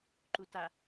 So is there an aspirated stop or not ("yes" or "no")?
no